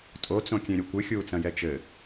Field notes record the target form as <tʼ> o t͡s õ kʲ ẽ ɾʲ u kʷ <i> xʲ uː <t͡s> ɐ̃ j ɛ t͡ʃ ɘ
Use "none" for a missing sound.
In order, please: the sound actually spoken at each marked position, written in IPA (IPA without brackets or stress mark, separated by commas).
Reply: tʼ, ɨ, t͡s